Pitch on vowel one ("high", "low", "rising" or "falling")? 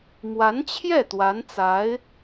rising